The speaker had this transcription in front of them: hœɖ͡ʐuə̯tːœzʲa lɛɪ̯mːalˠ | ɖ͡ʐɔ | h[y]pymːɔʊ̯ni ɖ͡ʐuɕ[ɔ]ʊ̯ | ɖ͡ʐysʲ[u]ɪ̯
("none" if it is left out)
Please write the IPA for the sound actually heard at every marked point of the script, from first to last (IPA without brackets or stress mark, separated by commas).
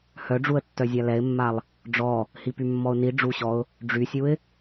i, ɔ, u